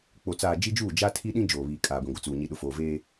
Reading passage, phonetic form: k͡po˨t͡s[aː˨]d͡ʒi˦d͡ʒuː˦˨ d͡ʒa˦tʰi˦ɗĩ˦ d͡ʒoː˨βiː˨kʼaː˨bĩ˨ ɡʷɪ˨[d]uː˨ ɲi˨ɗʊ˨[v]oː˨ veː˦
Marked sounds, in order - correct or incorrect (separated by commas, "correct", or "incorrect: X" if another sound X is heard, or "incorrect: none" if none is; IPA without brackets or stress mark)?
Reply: correct, incorrect: t͡s, incorrect: f